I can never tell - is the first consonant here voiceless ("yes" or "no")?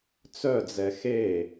yes